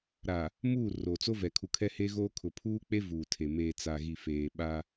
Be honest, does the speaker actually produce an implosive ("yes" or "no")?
yes